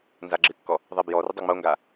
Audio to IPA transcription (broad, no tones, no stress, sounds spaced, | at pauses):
n z a ɡ͡ǁ ɨ kː ɔ | ðˤ e b j ɔ r ɨ dˤ o ŋ͡m o ŋ ɡ a